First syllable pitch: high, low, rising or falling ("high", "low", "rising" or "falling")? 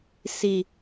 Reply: low